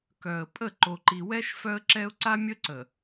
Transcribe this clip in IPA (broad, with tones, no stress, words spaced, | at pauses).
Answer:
kœ˨ə̯ pʼə˦˨ ǃo˨ǃi˨wɛ˦ʃ fœ˦ə̯ǁɛ˦ʊ̯ ǀa˦mʲə˦ǀə˨